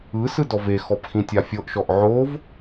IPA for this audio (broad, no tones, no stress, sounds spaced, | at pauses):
ɯ s ɯ d ɔ v e x ɔ p x ĩ tʲ a fʲ ɤ ʔ ʃ ɔ ʔ ʕ o v